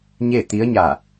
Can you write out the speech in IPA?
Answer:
ɲ e˥˨ t̪ i˧˥ ə̯ ɲ a˧˩

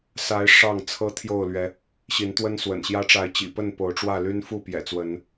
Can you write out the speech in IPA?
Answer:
s a˨˦ ɪ̯ ʂ ɑ˥˨ ŋ t͡sʰ ɤ˦ t̪ʰ j o˥˨ ʊ̯ l ɥ ɛ˨˦ | ɕ i˨˦ n t̪ w ə˦ n s w ə̰˨˩ n ɕ j ä˦ ʈ͡ʂ a˨˦ ɪ̯ t͡ɕ ḭ˨˩ p ə˥˨ n p o˨˦ ʊ̯ ʈ͡ʂ w ä˥˨ l y˦ n f u˥˨ p j ɛ̰˨˩ t͡s w ə˨˦ n

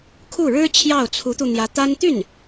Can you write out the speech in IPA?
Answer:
kʰ u˥˩ ɻ ɻ̩˥ t͡ɕʰ j ɑ˥˩ ʊ̯ t͡sʰ u˧˥ t̪ u˧ n̪ j ä˧˥ t̪ a˥ n t̪ y˥˩ n

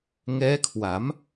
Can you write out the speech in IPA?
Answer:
ŋ ɛː˦˥ kʰ w a˩˦ m

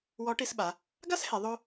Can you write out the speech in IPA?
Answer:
w ɔ˧˥ ʈ i˧ s ɓ a˩˧ | ɡ a˥ s h e˩˧ ðˤ o˥

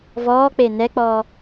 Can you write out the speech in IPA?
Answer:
v ɔː k͡p e n ɛ k͡p ɔː

